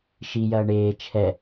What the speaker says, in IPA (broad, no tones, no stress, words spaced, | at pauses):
ʃijɐː ɳeː t͡ʃʰɛ